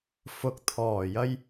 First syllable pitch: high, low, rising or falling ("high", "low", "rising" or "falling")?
rising